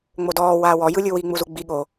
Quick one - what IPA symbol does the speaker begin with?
ŋ͡m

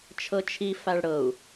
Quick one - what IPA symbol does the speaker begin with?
t͡ʃʰ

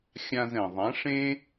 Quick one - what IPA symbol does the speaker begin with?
xʲ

